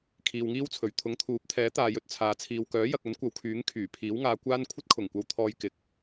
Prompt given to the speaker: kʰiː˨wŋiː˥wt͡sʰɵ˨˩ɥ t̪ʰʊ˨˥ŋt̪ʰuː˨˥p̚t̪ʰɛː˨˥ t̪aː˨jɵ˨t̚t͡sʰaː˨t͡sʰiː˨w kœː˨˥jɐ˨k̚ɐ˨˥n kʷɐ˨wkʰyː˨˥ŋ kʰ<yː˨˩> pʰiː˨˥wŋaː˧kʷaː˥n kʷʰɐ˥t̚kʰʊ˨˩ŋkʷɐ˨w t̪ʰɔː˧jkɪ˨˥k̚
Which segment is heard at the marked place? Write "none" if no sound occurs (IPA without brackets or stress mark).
yː˨˩